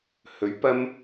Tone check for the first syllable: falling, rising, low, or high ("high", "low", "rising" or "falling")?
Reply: rising